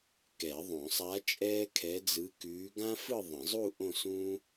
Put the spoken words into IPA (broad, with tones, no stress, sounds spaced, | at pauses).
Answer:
k ɛ˨˩˦ ðˤ õ˨˩˦ sˤ a˧˥ t͡ʃʼ ɛː˥ kʰ ɛ˧˥ d͡z ɯ˧˥ k ʉː˧˥ ɡ ã˥ f ɯ˥˧ ðˤ ə̃˨˩˦ zˤ u˥˧ ʔ õ˥˧ s ũ˥